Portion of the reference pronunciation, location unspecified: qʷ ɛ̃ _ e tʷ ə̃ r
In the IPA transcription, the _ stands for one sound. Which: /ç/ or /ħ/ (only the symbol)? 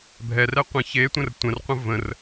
ç